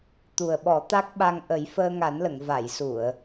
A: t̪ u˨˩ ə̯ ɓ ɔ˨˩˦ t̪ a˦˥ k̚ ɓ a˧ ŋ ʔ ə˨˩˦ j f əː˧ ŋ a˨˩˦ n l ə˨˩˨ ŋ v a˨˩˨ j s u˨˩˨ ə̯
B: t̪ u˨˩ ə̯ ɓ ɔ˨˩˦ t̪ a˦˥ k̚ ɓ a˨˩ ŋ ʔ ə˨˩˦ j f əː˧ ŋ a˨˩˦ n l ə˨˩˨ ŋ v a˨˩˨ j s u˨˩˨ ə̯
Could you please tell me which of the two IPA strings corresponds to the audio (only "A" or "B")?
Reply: A